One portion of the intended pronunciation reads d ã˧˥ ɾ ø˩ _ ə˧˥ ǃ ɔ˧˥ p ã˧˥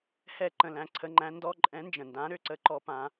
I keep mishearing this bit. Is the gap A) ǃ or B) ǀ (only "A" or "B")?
B